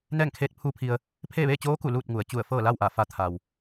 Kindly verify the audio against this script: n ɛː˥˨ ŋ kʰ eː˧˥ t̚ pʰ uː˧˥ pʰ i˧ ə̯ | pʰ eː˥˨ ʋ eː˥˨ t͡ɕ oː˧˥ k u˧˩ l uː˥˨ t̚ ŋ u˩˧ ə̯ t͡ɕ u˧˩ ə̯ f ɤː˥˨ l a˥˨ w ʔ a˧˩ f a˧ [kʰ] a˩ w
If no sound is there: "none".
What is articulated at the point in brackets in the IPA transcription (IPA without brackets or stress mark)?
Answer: t̪ʰ